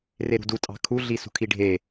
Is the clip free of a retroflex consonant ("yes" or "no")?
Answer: no